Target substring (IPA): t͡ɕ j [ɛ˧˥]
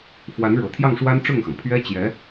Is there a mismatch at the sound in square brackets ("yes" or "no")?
no